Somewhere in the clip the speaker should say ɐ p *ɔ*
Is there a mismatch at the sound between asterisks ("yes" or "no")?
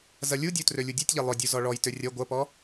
no